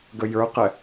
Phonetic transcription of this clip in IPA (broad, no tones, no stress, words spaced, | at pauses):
ɡəjə˞qɛ